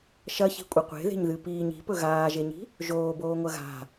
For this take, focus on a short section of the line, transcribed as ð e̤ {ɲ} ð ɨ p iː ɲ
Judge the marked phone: correct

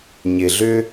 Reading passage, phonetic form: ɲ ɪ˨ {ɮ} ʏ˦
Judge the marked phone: correct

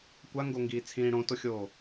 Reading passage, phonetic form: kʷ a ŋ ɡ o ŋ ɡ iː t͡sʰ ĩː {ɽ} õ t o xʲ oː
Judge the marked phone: correct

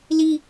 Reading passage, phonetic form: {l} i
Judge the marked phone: correct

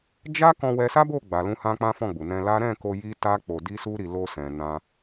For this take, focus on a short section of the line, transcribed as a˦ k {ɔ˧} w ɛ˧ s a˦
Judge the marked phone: incorrect: ɔ̃˧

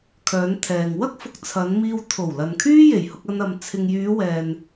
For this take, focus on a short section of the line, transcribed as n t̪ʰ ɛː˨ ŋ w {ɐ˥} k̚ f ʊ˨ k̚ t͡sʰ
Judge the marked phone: correct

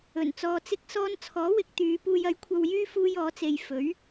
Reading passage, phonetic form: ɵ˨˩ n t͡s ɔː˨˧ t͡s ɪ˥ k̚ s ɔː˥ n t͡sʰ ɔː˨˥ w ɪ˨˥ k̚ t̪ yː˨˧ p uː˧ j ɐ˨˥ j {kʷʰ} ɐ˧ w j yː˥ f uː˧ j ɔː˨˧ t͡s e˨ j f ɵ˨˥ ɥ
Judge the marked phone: correct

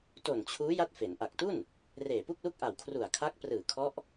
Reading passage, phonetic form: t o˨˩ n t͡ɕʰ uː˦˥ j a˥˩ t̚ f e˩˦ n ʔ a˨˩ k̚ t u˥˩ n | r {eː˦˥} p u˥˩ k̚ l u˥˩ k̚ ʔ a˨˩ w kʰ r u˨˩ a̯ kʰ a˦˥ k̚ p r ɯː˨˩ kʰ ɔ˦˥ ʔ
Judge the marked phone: incorrect: eː˨˩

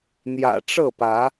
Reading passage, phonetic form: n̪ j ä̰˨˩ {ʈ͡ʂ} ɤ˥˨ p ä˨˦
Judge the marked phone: correct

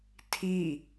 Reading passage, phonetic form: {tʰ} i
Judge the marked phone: correct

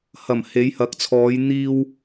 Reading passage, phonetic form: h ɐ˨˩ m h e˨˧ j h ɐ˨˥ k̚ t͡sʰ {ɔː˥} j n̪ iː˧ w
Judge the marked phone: incorrect: ɔː˨˧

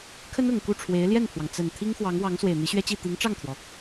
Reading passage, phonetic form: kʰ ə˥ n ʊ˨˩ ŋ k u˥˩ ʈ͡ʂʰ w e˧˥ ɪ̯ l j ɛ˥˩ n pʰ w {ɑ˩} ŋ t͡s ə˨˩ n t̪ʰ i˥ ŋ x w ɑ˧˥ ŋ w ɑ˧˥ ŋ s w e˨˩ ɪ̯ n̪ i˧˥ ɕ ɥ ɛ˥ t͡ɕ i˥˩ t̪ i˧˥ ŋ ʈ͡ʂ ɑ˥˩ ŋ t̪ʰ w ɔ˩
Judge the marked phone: correct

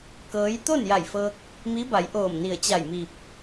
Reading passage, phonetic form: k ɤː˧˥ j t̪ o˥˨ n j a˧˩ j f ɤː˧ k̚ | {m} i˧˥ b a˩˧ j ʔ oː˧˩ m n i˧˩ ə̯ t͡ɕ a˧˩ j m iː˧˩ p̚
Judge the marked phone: correct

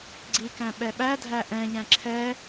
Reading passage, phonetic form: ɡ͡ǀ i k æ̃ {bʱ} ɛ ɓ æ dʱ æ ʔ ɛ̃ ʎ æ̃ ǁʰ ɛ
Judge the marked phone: incorrect: ɓ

